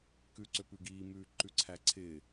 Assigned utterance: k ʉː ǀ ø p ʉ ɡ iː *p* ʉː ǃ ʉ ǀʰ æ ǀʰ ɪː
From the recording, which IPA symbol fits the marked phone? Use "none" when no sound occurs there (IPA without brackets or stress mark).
m